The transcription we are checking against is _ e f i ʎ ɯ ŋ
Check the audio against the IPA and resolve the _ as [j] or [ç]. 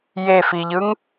j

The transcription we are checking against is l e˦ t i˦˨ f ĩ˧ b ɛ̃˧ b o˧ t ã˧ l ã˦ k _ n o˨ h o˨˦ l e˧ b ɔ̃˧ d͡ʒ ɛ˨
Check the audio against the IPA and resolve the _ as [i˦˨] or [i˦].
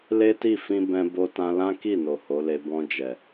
i˦˨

